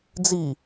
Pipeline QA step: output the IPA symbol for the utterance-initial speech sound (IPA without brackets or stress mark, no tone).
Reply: d͡z